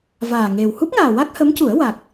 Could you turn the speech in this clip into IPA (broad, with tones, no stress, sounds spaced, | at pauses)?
v aː˨˩ ŋ e˨˩ w h u˦˥ p̚ ŋ aː˨˩ w a˦˥ k̚ h ə˧˥ m c u˨˩˦ ə̯ w a˨˩ k̚